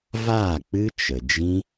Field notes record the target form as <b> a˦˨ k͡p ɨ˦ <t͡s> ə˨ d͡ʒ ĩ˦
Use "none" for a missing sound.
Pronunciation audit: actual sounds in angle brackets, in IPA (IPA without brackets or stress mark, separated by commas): v, t͡ʃ